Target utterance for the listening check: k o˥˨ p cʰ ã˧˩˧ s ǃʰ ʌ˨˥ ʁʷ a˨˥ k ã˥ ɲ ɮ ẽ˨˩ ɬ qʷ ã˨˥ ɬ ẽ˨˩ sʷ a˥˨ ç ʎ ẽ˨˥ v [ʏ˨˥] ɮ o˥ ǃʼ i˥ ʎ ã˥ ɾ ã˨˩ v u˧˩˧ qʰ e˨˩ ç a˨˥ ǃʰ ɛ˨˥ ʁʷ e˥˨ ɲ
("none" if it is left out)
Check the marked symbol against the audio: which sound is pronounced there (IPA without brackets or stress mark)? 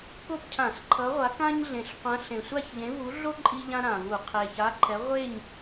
u˨˥